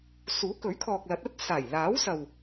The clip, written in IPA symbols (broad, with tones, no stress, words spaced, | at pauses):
suː˨˥kɵ˨˥ɥkʰɔː˨k̚ lɐ˨˥t̚ɐ˥t̚ saː˨˩jlaː˨˥wsɐ˨w